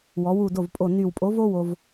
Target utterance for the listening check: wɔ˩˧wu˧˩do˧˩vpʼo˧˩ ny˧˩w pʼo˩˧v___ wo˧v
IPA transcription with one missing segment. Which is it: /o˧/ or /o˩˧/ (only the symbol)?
o˧